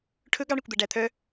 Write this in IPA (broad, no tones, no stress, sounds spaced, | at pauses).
ʈʰ ɵ ɡ ɑ ɳ e kʷ d̪ æ ɖ æ t̪ʰ œ